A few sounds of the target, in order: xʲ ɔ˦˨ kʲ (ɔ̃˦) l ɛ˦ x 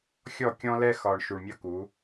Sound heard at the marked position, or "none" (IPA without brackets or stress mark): ɔ̃˦